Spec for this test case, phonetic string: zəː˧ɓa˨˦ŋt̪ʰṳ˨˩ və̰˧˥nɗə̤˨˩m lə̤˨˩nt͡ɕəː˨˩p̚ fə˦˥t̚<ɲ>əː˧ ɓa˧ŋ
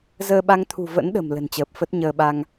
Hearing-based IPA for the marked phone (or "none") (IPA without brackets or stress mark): ɲ